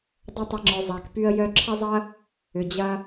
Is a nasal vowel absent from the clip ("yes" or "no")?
yes